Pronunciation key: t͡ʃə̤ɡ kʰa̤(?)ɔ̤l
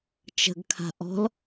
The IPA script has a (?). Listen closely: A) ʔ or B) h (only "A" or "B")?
A